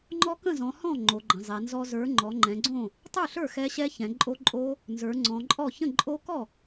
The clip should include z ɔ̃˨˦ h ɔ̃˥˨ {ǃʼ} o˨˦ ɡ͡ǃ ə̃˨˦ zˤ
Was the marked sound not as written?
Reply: yes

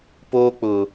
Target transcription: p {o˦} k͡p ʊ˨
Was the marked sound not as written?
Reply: yes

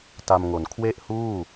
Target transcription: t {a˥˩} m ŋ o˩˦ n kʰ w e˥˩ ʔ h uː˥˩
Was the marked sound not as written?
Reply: yes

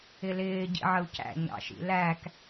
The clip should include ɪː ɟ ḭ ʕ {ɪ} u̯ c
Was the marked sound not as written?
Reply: yes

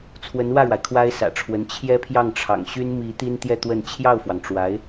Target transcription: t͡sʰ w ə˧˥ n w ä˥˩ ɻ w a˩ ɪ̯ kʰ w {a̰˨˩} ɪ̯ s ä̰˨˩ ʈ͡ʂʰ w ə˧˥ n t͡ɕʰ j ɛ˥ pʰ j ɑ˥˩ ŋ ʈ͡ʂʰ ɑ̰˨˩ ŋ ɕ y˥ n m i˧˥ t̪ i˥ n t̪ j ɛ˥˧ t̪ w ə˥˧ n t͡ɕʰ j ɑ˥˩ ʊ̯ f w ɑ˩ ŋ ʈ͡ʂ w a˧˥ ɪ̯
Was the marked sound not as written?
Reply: yes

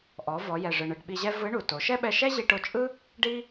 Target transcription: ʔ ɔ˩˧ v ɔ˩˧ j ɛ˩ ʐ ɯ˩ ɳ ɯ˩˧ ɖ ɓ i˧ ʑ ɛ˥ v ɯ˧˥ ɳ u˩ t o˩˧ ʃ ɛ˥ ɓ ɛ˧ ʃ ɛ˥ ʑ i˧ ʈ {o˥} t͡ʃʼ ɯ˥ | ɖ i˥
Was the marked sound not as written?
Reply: yes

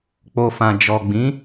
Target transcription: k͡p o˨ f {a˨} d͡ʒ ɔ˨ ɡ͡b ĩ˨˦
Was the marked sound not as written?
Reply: yes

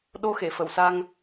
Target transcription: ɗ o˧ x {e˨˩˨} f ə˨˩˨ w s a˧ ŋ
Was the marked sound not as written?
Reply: no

